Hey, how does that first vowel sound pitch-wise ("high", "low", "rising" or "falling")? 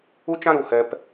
high